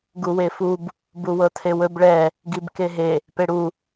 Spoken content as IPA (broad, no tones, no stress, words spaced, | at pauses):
ɡuwefub | buwɤtʰewɵb ɭɛ | ɡibkeɦe | peɽu